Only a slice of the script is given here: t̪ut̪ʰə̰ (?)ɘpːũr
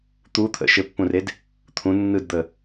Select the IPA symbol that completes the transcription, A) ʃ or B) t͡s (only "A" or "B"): A